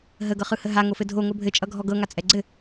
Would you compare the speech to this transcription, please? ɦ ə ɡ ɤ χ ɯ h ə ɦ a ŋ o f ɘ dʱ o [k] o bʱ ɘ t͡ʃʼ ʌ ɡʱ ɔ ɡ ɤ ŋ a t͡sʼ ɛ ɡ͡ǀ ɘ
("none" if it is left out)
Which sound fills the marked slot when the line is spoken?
ŋ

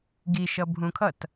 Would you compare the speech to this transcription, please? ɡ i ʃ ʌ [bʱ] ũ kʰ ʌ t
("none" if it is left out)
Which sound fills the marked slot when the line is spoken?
bʱ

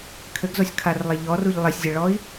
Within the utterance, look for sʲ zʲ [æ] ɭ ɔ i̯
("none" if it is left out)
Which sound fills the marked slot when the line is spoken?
ɐ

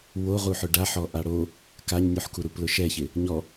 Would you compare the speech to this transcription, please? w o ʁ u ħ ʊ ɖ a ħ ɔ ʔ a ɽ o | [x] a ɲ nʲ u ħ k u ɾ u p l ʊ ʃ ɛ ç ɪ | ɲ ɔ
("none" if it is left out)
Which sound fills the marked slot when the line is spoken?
k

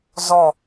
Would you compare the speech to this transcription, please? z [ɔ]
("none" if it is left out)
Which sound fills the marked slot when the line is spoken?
ɔ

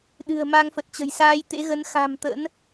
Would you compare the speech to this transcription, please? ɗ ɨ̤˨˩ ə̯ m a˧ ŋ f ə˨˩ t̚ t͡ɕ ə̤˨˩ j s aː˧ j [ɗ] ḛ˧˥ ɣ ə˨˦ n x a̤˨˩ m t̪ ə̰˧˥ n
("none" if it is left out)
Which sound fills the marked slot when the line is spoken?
t̪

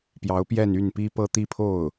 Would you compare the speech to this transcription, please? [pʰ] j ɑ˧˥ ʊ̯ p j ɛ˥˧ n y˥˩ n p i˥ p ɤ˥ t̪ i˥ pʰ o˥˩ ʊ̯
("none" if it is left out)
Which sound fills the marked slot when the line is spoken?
p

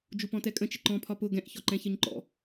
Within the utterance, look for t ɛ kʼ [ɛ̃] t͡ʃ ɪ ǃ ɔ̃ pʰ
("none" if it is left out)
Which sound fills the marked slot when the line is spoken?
ə̃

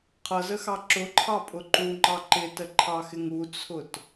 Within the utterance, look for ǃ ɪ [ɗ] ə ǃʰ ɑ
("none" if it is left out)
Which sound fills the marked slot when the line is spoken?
t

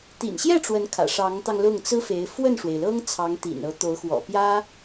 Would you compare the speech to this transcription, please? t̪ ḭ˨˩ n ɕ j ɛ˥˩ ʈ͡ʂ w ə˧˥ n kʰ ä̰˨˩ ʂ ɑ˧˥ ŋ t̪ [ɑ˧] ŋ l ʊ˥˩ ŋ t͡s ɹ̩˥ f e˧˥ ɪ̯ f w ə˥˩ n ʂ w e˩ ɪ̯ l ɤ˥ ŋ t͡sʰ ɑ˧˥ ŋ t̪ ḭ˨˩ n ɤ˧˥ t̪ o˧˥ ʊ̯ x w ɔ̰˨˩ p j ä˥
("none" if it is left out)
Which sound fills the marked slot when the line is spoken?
ɑ˧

